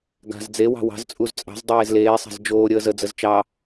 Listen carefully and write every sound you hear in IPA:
ɡ a̤ z d͡z e w ɑ̤ w ɑ̤ z t͡sʼ u z t͡sʼ ɑ̤ z dˤ eː z l eː sˤ a̤ z d͡ʒ oː ɾʲ əː z ə d͡z ə z t͡ʃ ɑ

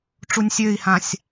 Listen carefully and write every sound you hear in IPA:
ʈ͡ʂ u nʲ sʲ ø i̯ h ã sʲ

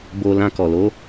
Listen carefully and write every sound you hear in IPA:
b o˧ l ã˧ k ɔ˨ l o˨˦

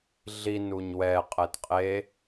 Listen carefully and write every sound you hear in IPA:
ɮ i n u ɲ w ɛ qʼ ɛ t qʼ e

